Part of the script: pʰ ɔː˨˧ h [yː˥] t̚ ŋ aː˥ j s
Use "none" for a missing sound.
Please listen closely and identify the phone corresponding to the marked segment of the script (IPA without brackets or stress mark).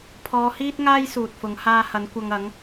iː˥